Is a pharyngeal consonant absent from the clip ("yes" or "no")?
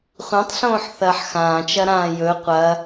no